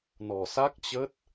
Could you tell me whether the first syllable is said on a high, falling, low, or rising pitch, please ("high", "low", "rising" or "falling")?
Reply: low